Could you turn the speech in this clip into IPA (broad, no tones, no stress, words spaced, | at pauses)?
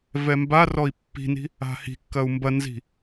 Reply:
vɛmbarɔi̯ pːi̤ni̤ | a̤hi̤kːɐu̯ mbɐnzi̤